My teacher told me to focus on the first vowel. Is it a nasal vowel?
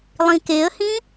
yes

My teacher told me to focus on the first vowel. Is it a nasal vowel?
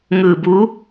no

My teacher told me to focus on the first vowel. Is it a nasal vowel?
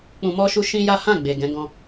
yes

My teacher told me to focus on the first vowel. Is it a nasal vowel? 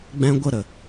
yes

